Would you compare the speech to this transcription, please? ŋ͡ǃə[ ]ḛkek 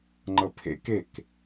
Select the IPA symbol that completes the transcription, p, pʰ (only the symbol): pʰ